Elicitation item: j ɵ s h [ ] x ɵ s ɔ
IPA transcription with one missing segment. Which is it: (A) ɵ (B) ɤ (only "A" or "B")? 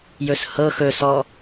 B